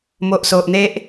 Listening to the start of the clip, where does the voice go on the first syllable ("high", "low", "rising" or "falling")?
low